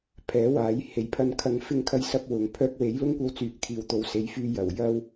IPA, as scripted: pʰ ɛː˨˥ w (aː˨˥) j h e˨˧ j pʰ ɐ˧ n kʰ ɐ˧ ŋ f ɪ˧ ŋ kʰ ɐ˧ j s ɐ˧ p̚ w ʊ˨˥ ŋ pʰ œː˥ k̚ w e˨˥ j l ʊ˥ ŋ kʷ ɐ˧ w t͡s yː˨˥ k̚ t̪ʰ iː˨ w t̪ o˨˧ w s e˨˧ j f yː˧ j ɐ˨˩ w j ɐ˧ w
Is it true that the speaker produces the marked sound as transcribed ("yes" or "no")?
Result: yes